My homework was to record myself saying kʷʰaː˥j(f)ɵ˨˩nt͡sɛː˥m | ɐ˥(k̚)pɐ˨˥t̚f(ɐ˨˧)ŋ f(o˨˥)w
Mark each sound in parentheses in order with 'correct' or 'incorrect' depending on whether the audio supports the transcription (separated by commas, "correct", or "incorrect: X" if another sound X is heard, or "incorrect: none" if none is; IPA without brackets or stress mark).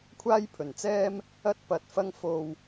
incorrect: pʰ, incorrect: t̚, incorrect: ɐ˥, incorrect: o˧